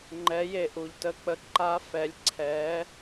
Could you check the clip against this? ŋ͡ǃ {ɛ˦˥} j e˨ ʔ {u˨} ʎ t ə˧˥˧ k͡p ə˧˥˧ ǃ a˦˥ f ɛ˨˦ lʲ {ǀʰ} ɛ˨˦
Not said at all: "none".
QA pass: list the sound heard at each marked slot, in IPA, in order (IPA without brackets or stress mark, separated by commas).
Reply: ɛ˨˦, u˨, ǀʰ